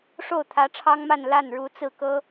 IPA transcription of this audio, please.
ʂ o˥˩ ʊ̯ t̪ʰ ä˧˥ ʈ͡ʂʰ ɑ˥ ŋ m a˥˧ n l a˥˩ n ɻ u˧˥ t͡s ɹ̩˥˩ k ɤ˥

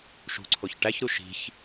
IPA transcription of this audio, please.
ʃ ṳ ǀʰ o ç ʈ æ ç ɾ u ʃ i̤ ç

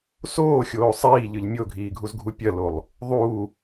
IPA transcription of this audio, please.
s oː xʲ oː sˤ iː ʎ ɨ ʎ mʲ o ɡʱ iː ɡʱ u z ɡʱ u pʲ ɐ l o lˠ | ðˤ uː

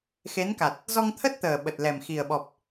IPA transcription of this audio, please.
x e˨˦ n k a˨˩ t̚ | z ɔ˧ ŋ t̪ʰ ə˦˥ t̚ t̪ əː˨˩ ɓ ə˨˩ t̚ l ɛ˨˩ m x i˨˩ ə̯ ɓ ɔ˨˩ p̚

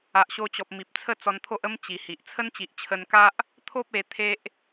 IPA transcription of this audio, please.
a˨ ʔ ɕ o˧ t͡ɕ ɔ˨ p̚ m i˨ p̚ t͡sʰ ə˥˧ t͡s ɔ˧ n t̪ʰ o˦ ʔ ə˦ m t͡ɕ i˨˩ h i˨ ʔ t͡sʰ ə˦ n t͡ɕ i˨ ʔ t͡ɕʰ ə˧ n k a˦ ʔ | t̪ʰ o˦ p̚ e˧ t̪ʰ e˦ ʔ

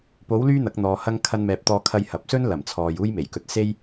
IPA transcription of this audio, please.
p o˨˥ w l yː˥ n̪ ɐ˨˥ k̚ n̪ ɔː˨˧ h ɐ˥ ŋ kʰ ɐ˧ n m ɛː˨˥ p̚ t̪ ɔː˧ kʰ ɐ˧ j h ɐ˨ p̚ s ɵ˥ n l ɐ˨˩ m t͡sʰ ɔː˨ j uː˥ j m e˨˩ j k ɵ˧ t̚ s e˥ j

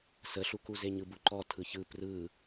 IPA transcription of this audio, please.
s ə ɬ u k u z e ɲ ɯ b u ǃ ɔ tʰ ɯ ç ɯ p r ɯ

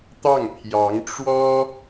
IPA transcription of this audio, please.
t̪ ɑ˥˩ ŋ pʰ j ɑ˧˥ ŋ ʈ͡ʂ w ɔ˥

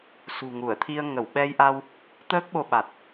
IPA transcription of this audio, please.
s ṳ˨˩ ŋ u˧˩ ə̯ t̪ʰ i˧ ə̯ ŋ ə˧˩ w ɓ ɛ˧ j ʔ a˧ w | t̪ əː˦˥ k̚ ɓ o˧ ɓ a˨˩ t̚

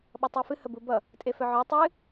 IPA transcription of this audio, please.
ɓ ʌ tˤ e f ɨ h ə b u b ʌ | tʼ e f œ ʕ œ tˤ ɨ

